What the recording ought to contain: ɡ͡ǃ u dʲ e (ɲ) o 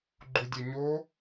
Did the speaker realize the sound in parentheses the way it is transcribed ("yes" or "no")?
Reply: yes